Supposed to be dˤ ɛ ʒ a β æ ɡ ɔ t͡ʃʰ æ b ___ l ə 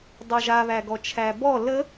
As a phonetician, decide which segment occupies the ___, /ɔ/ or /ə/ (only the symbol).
ɔ